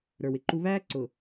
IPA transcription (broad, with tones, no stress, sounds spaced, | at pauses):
ɾ ə˞˨ w ɪ˨ ǃ u˦ β æː˦ ǀ ʊ˨